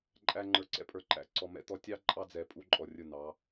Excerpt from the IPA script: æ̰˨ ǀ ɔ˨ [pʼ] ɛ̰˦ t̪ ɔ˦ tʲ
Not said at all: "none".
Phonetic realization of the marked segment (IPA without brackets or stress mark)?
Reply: m